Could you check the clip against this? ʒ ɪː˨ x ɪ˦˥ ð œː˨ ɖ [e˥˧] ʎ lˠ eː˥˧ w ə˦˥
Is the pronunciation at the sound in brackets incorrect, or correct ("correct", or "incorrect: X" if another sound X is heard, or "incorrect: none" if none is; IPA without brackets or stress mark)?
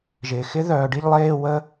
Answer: incorrect: i˥˧